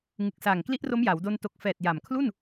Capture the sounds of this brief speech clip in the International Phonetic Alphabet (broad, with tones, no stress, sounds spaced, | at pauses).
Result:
ŋ ɯ˨˩ k̚ s aː˨˩ ŋ k l i˦˥ ʔ r o˦˥ m j a˩˦ w d o˧ n t o˨˩ k̚ f ɛː˨˩ t̚ j a˨˩ m kʰ l u˥˩ n